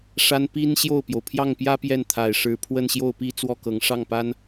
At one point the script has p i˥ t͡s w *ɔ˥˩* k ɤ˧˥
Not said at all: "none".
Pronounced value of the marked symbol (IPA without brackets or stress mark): ɔ˥˩